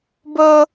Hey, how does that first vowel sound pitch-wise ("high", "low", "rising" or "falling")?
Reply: high